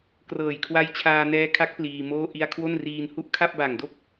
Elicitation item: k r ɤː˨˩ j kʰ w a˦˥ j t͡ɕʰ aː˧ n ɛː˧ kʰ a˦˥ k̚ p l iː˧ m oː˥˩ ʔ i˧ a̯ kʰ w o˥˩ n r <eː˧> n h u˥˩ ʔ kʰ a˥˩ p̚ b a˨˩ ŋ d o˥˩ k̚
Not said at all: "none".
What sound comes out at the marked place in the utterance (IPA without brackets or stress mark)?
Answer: iː˧